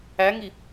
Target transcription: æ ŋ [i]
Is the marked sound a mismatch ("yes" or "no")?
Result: no